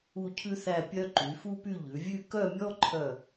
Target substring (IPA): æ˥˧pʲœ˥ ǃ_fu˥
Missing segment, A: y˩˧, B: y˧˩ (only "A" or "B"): A